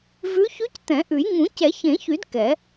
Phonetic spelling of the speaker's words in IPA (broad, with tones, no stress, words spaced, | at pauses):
vʉ˧˥ çʉ˧˥ct̪ɛ̃˨˩˦ʔʉ˨˩˦j ŋũ˨˩˦cɛ˨˩˦çẽ˨˩˦çy˨˩˦d kɛ˨˩˦